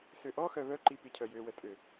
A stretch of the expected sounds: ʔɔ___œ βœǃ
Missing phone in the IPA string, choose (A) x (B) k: A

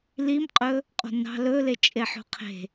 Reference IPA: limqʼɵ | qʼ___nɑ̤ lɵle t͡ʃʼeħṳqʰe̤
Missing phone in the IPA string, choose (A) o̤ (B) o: A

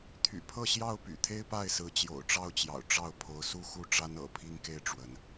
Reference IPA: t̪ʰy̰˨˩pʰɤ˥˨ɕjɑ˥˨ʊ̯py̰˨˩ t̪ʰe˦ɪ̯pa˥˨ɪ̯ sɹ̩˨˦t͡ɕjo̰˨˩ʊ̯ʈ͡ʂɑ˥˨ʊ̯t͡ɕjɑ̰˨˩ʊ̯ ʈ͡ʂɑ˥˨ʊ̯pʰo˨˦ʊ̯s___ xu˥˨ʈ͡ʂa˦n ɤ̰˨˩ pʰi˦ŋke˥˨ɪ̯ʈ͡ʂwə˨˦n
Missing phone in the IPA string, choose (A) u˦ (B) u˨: A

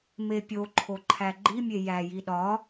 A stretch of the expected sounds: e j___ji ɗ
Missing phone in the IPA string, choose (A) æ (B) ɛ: A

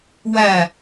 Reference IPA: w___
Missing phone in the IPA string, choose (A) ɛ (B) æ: B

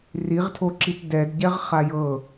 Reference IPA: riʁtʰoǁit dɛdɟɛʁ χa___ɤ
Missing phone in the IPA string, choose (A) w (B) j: B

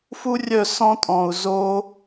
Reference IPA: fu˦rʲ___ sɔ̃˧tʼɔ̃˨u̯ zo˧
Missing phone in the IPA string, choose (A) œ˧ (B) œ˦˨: B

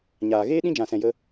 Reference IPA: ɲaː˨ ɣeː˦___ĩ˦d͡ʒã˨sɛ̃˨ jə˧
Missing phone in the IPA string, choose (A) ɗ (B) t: A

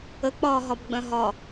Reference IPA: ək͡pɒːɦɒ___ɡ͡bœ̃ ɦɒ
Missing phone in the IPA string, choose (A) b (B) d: A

